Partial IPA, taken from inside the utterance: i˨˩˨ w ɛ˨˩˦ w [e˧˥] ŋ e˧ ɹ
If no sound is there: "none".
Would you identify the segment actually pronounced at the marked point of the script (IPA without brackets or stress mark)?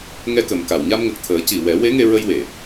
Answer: e˧˥